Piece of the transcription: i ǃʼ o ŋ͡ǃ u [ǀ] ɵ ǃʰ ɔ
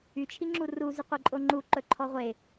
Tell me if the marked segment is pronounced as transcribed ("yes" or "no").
no